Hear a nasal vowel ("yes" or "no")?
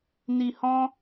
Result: yes